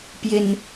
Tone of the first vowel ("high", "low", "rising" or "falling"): high